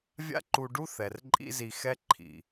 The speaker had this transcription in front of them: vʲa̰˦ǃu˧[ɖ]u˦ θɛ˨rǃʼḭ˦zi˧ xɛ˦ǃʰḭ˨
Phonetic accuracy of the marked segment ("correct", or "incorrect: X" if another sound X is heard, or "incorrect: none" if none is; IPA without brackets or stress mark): correct